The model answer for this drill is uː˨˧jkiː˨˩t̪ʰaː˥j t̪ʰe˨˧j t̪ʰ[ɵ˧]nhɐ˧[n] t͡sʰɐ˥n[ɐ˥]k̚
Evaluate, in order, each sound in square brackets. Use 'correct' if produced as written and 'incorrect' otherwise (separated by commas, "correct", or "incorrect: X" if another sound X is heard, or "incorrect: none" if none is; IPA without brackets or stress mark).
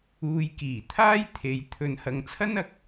correct, incorrect: ŋ, incorrect: ɐ˨